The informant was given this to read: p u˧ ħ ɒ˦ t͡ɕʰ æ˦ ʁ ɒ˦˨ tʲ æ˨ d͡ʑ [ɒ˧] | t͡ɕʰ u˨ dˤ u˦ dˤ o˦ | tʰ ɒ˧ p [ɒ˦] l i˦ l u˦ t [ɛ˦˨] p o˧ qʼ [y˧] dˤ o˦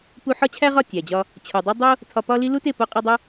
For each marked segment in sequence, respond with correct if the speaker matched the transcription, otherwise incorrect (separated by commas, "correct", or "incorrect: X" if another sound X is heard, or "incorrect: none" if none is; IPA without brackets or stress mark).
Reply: correct, correct, incorrect: e˦˨, incorrect: i˧